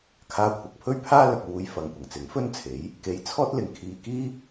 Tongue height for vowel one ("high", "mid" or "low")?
low